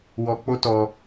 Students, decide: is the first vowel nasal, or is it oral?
oral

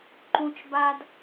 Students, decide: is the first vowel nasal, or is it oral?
nasal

